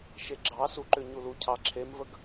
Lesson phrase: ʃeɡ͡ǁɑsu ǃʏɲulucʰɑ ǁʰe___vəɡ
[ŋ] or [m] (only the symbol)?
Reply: m